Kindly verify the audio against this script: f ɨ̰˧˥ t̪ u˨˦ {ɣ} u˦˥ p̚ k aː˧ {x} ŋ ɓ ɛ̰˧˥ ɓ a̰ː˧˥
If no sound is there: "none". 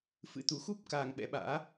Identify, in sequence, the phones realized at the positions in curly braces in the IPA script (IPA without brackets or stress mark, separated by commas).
x, none